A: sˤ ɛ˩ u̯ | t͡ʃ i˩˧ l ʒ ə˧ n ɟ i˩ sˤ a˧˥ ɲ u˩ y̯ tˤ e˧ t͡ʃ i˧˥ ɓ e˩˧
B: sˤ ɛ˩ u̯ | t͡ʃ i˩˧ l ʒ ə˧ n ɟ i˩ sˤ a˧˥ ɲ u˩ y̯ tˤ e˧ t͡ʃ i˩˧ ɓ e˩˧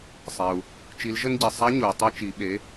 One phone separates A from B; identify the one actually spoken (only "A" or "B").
B